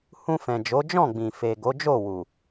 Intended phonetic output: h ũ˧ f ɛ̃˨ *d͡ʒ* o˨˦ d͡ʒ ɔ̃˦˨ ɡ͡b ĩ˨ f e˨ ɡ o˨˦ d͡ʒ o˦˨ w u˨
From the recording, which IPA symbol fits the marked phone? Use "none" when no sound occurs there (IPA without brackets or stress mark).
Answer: d͡ʒ